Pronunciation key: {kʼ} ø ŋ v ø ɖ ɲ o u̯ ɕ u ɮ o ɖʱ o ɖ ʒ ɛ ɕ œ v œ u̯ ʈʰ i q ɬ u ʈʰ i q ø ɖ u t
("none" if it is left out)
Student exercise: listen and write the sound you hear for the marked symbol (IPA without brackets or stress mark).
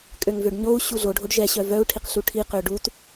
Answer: kʼ